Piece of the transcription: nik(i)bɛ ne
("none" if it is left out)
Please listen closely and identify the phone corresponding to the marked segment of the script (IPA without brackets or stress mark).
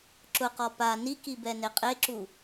i